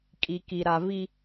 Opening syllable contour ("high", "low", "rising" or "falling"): low